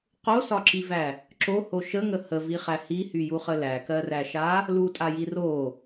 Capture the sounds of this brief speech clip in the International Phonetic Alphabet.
q o s ɒ ǁ i v æ | ǁ o h o ʃ ə ŋ ə h ə v i χ æ h i h y j u χ ə l æ k ɜ r æ ʃ a | l u tʼ a j i r o

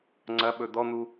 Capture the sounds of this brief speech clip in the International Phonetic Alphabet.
ŋ͡ǀ ɐ ɓ ɵ d̪ ɔ n̪ u

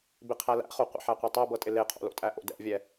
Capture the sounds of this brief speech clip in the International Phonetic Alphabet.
b ɪ qʰ æ l æ̰ χ o qʷ ə̰ ħ æ qʷ ɛ tˤ æ b ɤ tʼ ɪ l e qʰ o̰ l o̰ tʼ æ ʔ o̰ d ɛ̰ vʲ ɛ

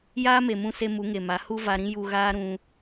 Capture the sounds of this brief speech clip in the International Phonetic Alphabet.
j aː˦ m e˨ m ũ˧ s e˧ m u˨˦ ŋ e˨ m a˨˦ h u˦ v a˧ ɾ ĩ˦ j u˧ ɣ aː˦ ɾ ũ˧

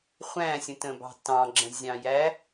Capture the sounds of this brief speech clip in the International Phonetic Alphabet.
χʷ æ̃ sʲ ə̃ t ə̃ b ɑ̤ t ɑ̃ ɡ͡ǁ ə̃ zʲ ɑ̃ j æ

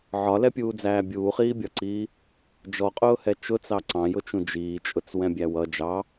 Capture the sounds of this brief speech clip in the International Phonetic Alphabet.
ʕ ɒ l ɛ pʲ uː d͡z æː bʲ uː χ iː bʲ ɒ ǀ iː | d͡ʒ ɔ qʼ ʊː h ɛ t͡ʃ ʊ t͡s ɑ ǀ ɑ̃ j ʊ t͡ʃ ũ d͡ʒ iː t͡ʃʼ ʊ t͡s w ɛ̃ bʲ æ w ʌ d͡ʒ ɑ

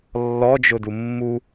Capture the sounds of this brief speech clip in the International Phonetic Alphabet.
lː ɔ d͡ʒ ʊ d u mː u

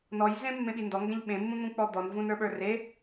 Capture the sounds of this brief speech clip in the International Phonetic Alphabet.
n ɔ j z ẽ mː ẽ ɓ i n d ɔ ŋ ɡ ɛ̃ ʎ ɓ ẽ mː ũ n̪ ũ k͡p ɔ d̪ ɔ n v ũ n ə˞ ɓ ə˞ r e

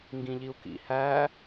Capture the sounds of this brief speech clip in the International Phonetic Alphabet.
ŋ ɡ ĩ ʎ i u̯ k ḭ h æ

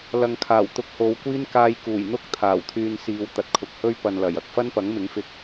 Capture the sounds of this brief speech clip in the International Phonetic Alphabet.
l ɐ˨ ŋ kʰ aː˨˩ w t̪ ʊ˧ k̚ h o˨˧ w kʷ iː˥ n k aː˧ j k uː˨˩ j n̪ ʊ˥ k̚ t̪ʰ aː˨˩ w t̪ʰ yː˧ n s iː˨˧ w t̪ ɐ˨ t̚ kʰ ʊ˨ k̚ h ɵ˥ ɥ p ɐ˧ n l ɐ˨˩ j ɐ˨ k̚ f ɐ˥ n p ɐ˨˥ ŋ m ɪ˨˥ ŋ f ɪ˧ k̚

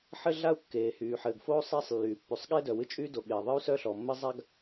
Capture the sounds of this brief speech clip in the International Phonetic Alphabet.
ħ ɘ˥ ɮ a˥ u̯ kː eː˩ h yː˩ ħ ɘː˩ ɡ f oː˥ sˤ eː˥ sˤ lː yː˩ pː y˩ sˤ ɠ eː˥ d œ˩ w ɨ˥ t͡ʃʼ yː˥ d o˩ ɠ eː˩ ðˤ ɨ˥ u̯ s œ˥ ɬ ɔː˩ mː ɘ˥ zˤ a˥ ɡ

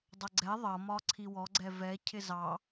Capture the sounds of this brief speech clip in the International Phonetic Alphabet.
dˤ ʌ ɡ͡ǀ ɛ ðˤ ʌ m ɒ ǀʰ i w ɔ ɡ͡ǀ ɛ v ɛ cʰ ɪ z ɑ

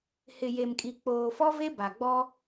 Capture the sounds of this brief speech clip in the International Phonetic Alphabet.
h ɪ˨ j e˨ m kʼ i˨ k͡p oː˨ f ɔ˦ v e˦ b a˨ ɡ͡b ɔ˦

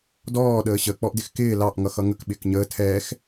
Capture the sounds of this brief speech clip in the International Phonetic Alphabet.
d ɔː ɗ əː ɕ ə k͡p ɔ ʔ d ɪ x k ɪː l ɑ ʔ ŋ ʌ x ʌ ŋ ə k ɓ ɪː k ɲ əː tʰ ɛː x

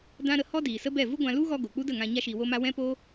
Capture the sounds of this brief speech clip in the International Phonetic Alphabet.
d ã˦ ɾ ə˧ h ɔ˦ d iː˨ s ə˦ b ɛ˦˨ v u˦ ɡʷ ã˧ l u˦ ɣ ɔ˧ ɡ o˨ k͡p u˦ d ə˦˨ ŋ ã˧ ɲ a˦ ʃ iː˧ w o˦ m a˦ w ɛ̃˦ p oː˦

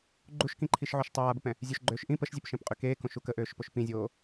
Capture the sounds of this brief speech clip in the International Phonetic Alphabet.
ɡ͡ǃ u ʃ k ĩ ǃʰ i ʃ ʕ o ʃ tˤ aː b ə p ɛ̃ | zʲ ø ʃ ɡ͡ǃ øː ʃ ʔ ĩ p ə ʃ zʲ ø p ʃ ẽ p qʼ y k eː k õ ʃ u k ə ʔ øː ʃ p o ʃ p ĩ zʲ oː

